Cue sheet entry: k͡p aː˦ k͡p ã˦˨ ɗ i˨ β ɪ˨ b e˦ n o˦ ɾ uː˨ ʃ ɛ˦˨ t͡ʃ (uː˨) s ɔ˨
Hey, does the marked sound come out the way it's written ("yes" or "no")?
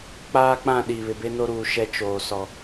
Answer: no